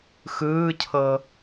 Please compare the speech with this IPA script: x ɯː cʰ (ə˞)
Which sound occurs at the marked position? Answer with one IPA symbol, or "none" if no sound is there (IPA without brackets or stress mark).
ɤ